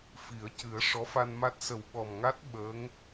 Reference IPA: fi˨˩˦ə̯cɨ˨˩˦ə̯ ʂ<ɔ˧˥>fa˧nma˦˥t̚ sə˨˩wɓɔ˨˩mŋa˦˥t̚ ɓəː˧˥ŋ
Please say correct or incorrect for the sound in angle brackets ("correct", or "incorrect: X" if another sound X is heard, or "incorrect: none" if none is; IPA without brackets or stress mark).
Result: correct